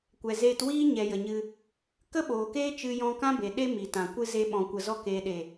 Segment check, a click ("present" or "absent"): absent